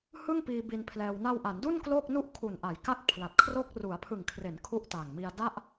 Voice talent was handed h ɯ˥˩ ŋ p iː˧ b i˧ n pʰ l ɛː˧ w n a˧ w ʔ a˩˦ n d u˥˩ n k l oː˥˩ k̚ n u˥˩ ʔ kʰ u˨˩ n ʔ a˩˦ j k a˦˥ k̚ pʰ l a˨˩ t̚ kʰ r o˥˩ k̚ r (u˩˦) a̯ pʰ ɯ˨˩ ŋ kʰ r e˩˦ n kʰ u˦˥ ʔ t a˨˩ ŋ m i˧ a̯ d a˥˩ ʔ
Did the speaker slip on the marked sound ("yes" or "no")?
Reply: no